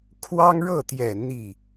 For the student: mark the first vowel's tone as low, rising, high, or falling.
high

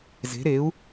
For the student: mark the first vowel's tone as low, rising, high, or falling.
rising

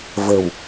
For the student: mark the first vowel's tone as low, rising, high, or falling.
low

